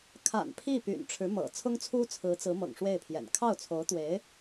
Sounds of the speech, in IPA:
kʰa̰˨˩n pʰi˥˩py̰˨˩n ʈ͡ʂʰɻ̩˧˥mɤ̰˨˩ t͡sʰʊ˥ŋt͡sʰu˥t͡sʰɹ̩˧˥t͡sɹ̩˧˥ mɤ̰˨˩ŋʂwe˥˩ɪ̯pʰjɛ̰˨˩n kʰɑ˥˩ʊ̯t͡sʰo˧˥ʊ̯t̪we˧˥ɪ̯

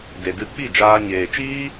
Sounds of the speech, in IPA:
de˨dɨ˧ k͡pi˦˨ d͡ʒaː˧ɲeː˨t͡ʃiː˦

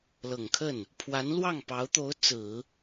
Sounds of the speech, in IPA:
lɤ˨˩ŋkʰə˥˩n | pʰwa˧˥nlwɑ˥˩ŋpɑ˧˥ʊ̯t̪o˧˥ʊ̯ t͡sɹ̩˨˩˦

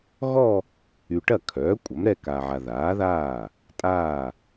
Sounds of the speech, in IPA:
ɣɔ˥˧ | y˨ ʈɐ˥˩kʰœː˩˥ kʷʼɐ˩˥mɾɛ˥˧ka˨ʕa˨ ðaː˩˥ðaː˥˩ | tʼaː˥˩

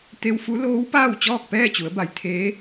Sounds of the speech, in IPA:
t̪e˧wfu˧˥ loː˧˥wpaː˥˨w t͡ɕɔː˥˨k̚pɛː˥˨t͡ɕu˩˧ə̯ba˩˧j t̪ʰeː˧˥

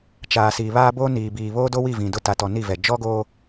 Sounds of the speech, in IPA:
t͡ʃaː˨si˨βaː˦ bo˦niː˨biː˨ βoː˦do˦wi˦˨ vĩ˨dʊ˦˨ ta˨tɔ˨ ni˦˨vɛ˨ d͡ʒɔ˦ɡoː˦

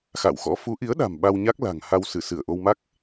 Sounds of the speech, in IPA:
xa̰˧˨wxɔ̰˧˥ fu˨˦ʔi˨˦ə̯ɗa̤˨˩m ɓa˧wɲa˦˥k̚ la̤˨˩ŋ ha˧wsɨ˧˩ sɨ˧˩ə̯ʔo˧wma˦˥k̚

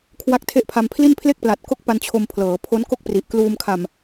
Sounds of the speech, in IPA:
kʰwa˦˥k̚tʰe˦˥ʔpʰa˧mpʰli˥˩n pʰle˥˩k̚pla˨˩t̚ ko˦˥k̚pa˧n t͡ɕʰo˧mpʰlɤː˩˦pʰo˦˥n ko˥˩k̚pri˨˩ʔkluː˧m kʰa˨˩m

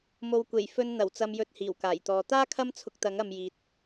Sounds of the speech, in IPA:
mo˨wkʷe˨˩jfɵ˧n n̪ɐ˨˩wt͡sɐ˨mjɵ˨t̚ hiː˨˩wkaː˨˩jt̪ɔː˨ t̪aː˥ kʰɐ˥mt͡sʰʊ˧k̚t̪ɐ˨˥ŋ ɐ˧mjiː˨t̚

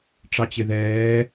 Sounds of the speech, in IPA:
ʈ͡ʂɑt͡ɕɪðɛː

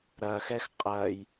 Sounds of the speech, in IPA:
ɾɐxɛx qʼɐj

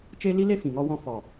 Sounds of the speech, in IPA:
t͡ʃe˧ li˦le˦fĩ˨ŋɔ˧ wɔ̃˧fɔ˨

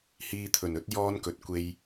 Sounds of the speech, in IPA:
hiː˧t̪ʰɵ˨˩nɵ˥t̚ jɔː˧n kɵ˨t̚kʷe˧j

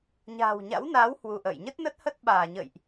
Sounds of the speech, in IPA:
ɲa̤ː˨˩wɲa̰˧˥wnaː˨˦w hwu˧ʔə̰ː˧˨j ɲə˦˥t̚nə˦˥t̚hə˦˥t̚ ɓaː˧˩ɲə̰˧˨jʔ

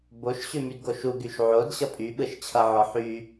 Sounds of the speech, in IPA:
boʃɕʉ mydɡoʃuɡyʃ ʕod ɕʌpʼyɓɯʃ t͡ɕʰʌʕɔ ħy

